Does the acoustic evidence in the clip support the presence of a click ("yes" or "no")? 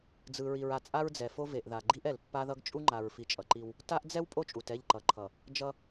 yes